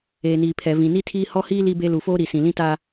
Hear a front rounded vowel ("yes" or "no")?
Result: no